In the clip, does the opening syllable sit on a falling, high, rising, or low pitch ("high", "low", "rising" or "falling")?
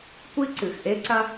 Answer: high